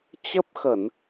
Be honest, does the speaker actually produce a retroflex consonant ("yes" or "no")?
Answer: no